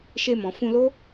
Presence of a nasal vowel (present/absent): present